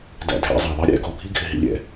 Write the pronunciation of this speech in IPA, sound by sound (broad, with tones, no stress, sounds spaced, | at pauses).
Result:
d æ̰˧ dʱ æ̰˧ zˤ æ˨ ðˤ ɪ˦ ɾʲ ɛ̰˧ ɡ ɔ˨ bʱ i˦ ɡʱ ɪ˧ ɦ ḭ˧ lʲ ɛ̰˧